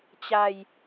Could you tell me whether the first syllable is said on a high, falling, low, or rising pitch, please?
low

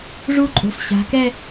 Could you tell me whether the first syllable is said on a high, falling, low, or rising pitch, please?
high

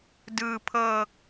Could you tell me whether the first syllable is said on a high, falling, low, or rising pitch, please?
low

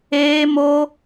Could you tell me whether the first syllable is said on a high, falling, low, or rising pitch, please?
high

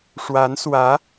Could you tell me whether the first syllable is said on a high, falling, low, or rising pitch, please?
rising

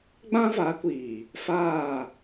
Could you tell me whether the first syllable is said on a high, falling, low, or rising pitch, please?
high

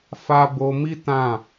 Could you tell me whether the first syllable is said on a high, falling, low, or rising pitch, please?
high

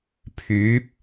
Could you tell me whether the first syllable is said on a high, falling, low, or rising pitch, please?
rising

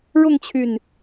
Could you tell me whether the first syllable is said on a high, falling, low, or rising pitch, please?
falling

